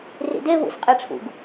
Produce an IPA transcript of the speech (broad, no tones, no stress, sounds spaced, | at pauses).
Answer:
r ḭ d e β ṵ s qʼ ɛ ʈ͡ʂʰ ṵ ɡ